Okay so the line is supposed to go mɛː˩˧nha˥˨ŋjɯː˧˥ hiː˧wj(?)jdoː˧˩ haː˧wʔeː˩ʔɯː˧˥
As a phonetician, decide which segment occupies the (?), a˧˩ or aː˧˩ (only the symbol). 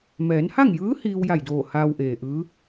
a˧˩